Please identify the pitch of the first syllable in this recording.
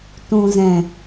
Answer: low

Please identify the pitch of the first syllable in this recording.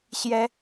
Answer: high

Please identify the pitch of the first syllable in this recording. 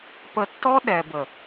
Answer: low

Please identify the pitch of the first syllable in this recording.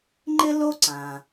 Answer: high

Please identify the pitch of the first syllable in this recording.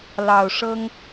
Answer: low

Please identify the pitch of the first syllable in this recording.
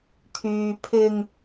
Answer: low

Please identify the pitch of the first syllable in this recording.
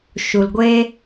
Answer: low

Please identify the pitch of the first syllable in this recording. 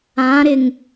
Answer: rising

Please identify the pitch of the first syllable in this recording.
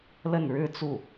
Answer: falling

